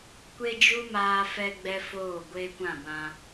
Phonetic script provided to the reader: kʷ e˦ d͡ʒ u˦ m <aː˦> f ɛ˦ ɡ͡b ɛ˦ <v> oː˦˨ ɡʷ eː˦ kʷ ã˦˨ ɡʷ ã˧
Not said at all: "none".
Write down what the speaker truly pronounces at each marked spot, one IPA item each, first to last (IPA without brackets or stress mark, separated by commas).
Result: aː˦, f